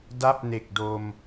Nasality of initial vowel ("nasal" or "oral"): oral